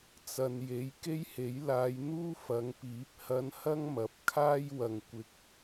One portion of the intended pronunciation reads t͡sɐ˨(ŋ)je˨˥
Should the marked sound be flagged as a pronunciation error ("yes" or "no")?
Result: yes